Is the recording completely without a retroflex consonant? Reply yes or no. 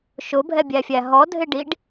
no